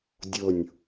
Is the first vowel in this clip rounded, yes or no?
yes